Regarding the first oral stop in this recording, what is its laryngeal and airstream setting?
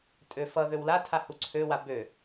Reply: ejective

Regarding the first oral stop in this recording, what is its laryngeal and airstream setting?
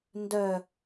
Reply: plain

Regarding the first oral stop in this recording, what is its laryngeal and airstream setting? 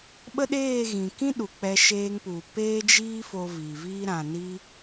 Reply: implosive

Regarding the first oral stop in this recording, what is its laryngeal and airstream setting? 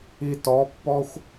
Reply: plain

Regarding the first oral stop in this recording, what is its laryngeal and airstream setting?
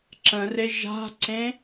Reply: click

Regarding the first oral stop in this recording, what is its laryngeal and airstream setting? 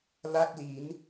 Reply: plain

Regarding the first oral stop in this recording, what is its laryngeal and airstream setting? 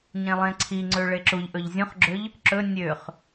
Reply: click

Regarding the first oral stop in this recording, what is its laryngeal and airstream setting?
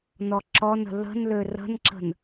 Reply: click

